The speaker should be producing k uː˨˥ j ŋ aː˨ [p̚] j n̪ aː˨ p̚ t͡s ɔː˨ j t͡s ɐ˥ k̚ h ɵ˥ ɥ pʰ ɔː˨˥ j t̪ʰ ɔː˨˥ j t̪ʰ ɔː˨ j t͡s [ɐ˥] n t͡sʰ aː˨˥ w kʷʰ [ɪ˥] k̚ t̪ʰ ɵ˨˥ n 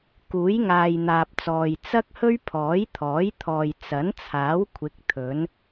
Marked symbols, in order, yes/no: no, no, no

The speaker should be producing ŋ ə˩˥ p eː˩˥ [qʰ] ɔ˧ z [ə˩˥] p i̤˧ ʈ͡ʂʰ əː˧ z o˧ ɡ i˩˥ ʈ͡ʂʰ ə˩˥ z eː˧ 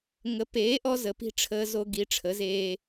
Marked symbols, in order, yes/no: no, yes

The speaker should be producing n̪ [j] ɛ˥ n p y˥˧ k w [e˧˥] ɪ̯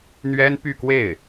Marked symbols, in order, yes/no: no, no

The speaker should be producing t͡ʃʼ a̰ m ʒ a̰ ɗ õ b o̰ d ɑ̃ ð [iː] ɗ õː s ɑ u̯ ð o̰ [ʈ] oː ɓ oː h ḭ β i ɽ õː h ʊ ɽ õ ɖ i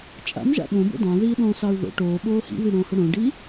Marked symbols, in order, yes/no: yes, yes

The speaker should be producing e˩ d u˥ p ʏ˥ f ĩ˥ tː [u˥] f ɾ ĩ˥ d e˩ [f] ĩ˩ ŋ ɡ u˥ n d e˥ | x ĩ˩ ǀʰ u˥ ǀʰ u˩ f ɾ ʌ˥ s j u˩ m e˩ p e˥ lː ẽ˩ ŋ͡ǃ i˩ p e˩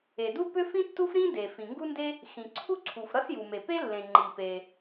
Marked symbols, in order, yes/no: yes, yes

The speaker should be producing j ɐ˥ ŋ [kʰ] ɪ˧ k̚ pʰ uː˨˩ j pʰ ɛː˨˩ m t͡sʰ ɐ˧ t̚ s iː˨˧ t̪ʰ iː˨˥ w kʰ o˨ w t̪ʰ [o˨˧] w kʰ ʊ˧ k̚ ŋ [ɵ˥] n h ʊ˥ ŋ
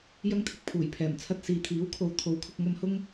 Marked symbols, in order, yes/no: no, no, no

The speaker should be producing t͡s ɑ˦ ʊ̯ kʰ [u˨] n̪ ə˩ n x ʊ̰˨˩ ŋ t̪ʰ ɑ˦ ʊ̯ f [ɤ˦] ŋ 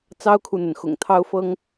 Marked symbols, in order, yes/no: yes, yes

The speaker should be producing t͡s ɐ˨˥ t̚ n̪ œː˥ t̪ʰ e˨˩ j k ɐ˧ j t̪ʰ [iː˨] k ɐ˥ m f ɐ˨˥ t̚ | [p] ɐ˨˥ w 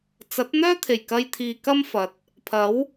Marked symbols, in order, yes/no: yes, no

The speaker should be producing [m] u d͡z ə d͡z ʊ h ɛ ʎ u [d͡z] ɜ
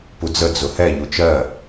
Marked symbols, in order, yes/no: no, no

